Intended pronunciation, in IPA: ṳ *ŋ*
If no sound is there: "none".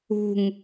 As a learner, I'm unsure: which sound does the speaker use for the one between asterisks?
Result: ŋ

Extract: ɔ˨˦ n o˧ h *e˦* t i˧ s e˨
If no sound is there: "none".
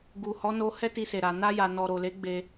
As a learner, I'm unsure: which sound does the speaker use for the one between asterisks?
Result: ɛ˦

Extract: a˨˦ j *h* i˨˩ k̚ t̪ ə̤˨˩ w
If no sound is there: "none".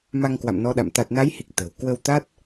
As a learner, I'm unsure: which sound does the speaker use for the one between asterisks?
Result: h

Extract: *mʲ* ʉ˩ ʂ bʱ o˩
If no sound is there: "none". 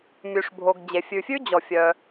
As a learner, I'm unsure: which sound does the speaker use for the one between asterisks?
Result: mʲ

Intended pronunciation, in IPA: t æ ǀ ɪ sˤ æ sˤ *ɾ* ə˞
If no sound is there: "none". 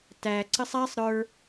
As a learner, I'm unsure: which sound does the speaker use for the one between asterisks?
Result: ɾ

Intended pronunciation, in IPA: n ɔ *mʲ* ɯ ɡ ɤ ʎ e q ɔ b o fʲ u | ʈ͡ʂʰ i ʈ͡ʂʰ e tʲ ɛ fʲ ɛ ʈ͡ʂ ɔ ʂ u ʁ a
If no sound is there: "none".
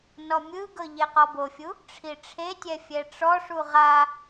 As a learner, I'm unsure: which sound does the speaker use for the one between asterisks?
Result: mʲ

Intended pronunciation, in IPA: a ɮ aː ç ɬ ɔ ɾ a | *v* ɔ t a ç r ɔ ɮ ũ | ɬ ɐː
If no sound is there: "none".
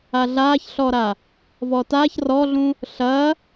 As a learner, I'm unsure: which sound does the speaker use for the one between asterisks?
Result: v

